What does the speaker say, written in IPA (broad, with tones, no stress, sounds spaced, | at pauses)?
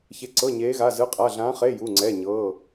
ç e˧˥ ǀ ɤ˧˥˧ ɲ eː˧˥ ɣ a˧˥˧ z ɯ˧˥˧ qʼ a˧˥˧ ɮ ãː˧˥ χ e˧˥˧ j u˧˥˧ ŋ͡ǀ ɛ˧˥˧ ɲ ɤː˧˥˧